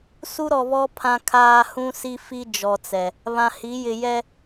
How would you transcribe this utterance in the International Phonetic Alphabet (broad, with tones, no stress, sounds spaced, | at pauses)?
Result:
s u˦ ɾ ɔ˨ β ɔ˦ pʰ ã˨ kʰ aː˨ h ũ˦ s i˦ f i˦ d͡ʒ ɔ˨ t͡s ɛ˨ | β ã˨ h i˨˦ j ɪ˨ j ɛ˦